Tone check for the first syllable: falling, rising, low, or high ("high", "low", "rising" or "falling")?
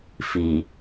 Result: low